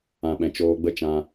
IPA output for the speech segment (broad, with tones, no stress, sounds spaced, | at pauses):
ã˨ ɓ ɛ̃˨ t͡ʃ oː˧ ɡ͡b ə˦ t͡ʃ ã˧